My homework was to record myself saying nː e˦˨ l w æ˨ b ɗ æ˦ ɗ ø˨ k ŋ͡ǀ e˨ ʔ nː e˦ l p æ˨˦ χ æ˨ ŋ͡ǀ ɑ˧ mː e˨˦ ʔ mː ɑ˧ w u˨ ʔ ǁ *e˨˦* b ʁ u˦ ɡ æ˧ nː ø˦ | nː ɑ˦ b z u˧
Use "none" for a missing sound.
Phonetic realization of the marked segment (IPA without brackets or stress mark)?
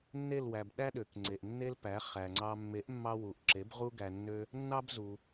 e˨˦